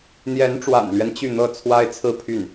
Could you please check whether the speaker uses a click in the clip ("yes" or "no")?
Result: no